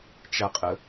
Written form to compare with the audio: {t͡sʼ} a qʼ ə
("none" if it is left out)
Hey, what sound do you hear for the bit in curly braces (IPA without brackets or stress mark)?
t͡ʃ